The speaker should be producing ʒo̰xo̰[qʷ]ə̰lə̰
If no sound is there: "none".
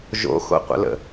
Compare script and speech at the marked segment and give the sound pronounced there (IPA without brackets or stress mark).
qʷ